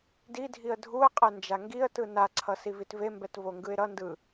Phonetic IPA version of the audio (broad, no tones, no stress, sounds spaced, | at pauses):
d i dʱ i ə̯ dʱ u ə̯ qʼ ɛ n d͡ʒ a ŋ ɡ i ə̯ t ɯ n a ǀʰ ʌ s i v i t v e m b ɛ t v o ŋ ɡ ɯ ɪ̯ ɾ ʌ n d ɯ